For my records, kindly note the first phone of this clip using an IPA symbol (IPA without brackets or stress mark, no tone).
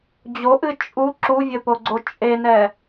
d͡ʑ